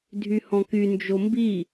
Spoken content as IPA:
dʱ y h ɔ̃ k y n d͡ʒ o m b i

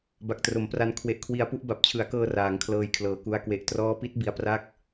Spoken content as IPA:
b a˨˩ k̚ t r o˩˦ m p r a˧ n kʰ w e˨˩ ʔ kʰ w i˨˩ a̯ p u˥˩ ʔ b a˨˩ p̚ t͡ɕʰ ɯ˩˦ a̯ k ɤː˧ r aː˩˦ ŋ kʰ l ɤː˧ j kʰ l ɤː˨˩ k u˧ a̯ k w e˨˩ ʔ t r ɔː˦˥ p i˦˥ t̚ b i˦˥ a̯ p r a˥˩ k̚

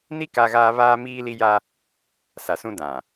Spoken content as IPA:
n i˦ k a˦ ɣ aː˦ β aː˦ m iː˦ l i˦ j a˦ | s a˨ s ũ˦ d ã˨

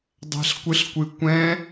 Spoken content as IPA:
dˤ ɛ̤ ɬ kʷ ɨ ɬ kʷ ɨ kʷ ɛ̃

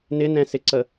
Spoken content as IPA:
n ɪ n ɛ̃ s ɪ ǀ ə

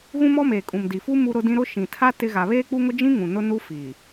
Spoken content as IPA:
ɣ ũ˦ m ɔ˦ m eː˨ kʼ ũ˨ m d i˨ f u˦ m u˦ ɾ ʊ˦ d ĩ˦ ɾ ʊ˦ ʃ ĩ˨ tʰ a˦ t ɪ˦ ɣ a˨ β eː˦ k͡p u˦ ŋ ʊ˦ d͡ʒ ĩ˦ ŋ ũ˨ n ʊ˦ n u˦ f i˨

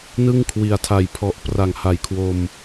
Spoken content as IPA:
n ɯ˥˩ ŋ kʰ w i˨˩ a̯ tʰ a˨˩ j pʰ ɔ˨˩ ʔ p r a˨˩ ŋ h a˨˩ j kʰ w o˧ m

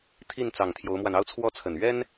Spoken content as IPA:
t̪ʰ i˥˩ n t͡s ɑ˨˩ ŋ t̪ʰ j o˧˥ ʊ̯ m w a˧ n ɑ˥˧ ʊ̯ t͡sʰ w ɔ˥˩ t͡sʰ ə˨˩ n ɥ ɛ˥ n

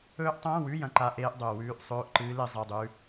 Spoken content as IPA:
ɵː˦˥ ʔ tˤ ɐ̃ː˧˥˧ w ʉ˧˥˧ j ɐ̃˦˥ ǃ a˦˥ ʔ eː˦˥ ʔ dˤ ɵː˧ w ʉː˦˥ ʔ sˤ ɵː˧˥˧ ʔ ǃ ɨː˦˥ l e˦˥ zˤ e˧˥˧ dˤ ʉ˦˥

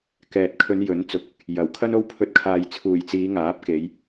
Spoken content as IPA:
k ɛː˨ t̚ kʰ ɵ˨˧ n j ɵ˨˥ n t͡s ʊ˨˥ k̚ | j ɐ˨˩ w kʰ ɐ˥ n o˥ w pʰ ɵ˧ t̚ kʰ aː˨ j t͡sʰ uː˨˩ j t͡s iː˨˧ ŋ aː˨˥ p̚ k e˨˧ j

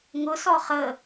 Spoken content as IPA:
ŋ ʊ s ɔ χ ə

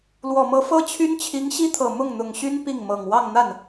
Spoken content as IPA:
l w ɔ˨˩ m ɤ˧˥ f ɤ˥ t͡ɕʰ y˥ n t͡ɕʰ i˧˥ ŋ ɕ i˥ t̪ʰ ɤ˨˩ m ʊ˥˩ ŋ n̪ ʊ˨˩ ŋ ɕ y˥ n p i˥˩ ŋ m ɤ˨˩ ŋ w ɑ˥˧ ŋ n̪ a˥˩ n

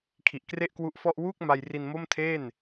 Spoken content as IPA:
kʰ i˨˩ ʔ k r e˥˩ ʔ k w u˦˥ ʔ f ɔ˥˩ ʔ w uː˥˩ k̚ m a˧ j r i˧ n m o˥˩ m tʰ eː˥˩ n

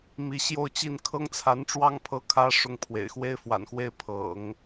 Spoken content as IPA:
m i˧˥ ɕ j o˥˧ ʊ̯ t͡ɕ i˥˩ n kʰ ɤ˥ ŋ t͡sʰ a˧˥ n ʈ͡ʂ w ɑ˥ ŋ pʰ ɤ˧˥ kʰ ä˧˥ ʂ ʊ˥ ŋ pʰ w ḛ˨˩ ɪ̯ x w e˥ ɪ̯ f w a̰˨˩ n x w e˥˩ ɪ̯ pʰ ɤ̰˨˩˦ ŋ

